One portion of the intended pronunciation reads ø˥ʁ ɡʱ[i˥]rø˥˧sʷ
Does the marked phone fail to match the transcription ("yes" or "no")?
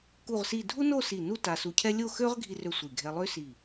no